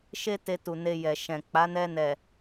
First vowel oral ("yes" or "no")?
yes